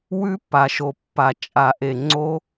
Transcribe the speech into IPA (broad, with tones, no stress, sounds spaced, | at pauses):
w ʉ˦˥ pː a˩ ʃ o˩ pː a˩ t͡ʃʼ a˨˩˦ ʔ e˩ ŋ͡ǀ o˦˥